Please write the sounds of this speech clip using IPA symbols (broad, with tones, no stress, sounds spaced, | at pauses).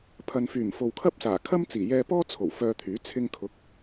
pʰ ɐ˨ n f yː˨˩ m f o˨ w kʰ ɐ˥ p̚ s aː˨˩ kʰ ɐ˥ m t͡s iː˨˩ j ɛː˧ p ɔː˥ t͡sʰ o˨˩ w f œː˧ t̪ʰ yː˨˥ t͡sʰ ɪ˧ ŋ kʰ ʊ˨˥ k̚